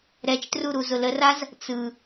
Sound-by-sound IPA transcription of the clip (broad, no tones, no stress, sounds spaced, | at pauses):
ɾ ɛ t͡ʃ t r u ɾ u z ʊ l ə r a z | t͡s ɯ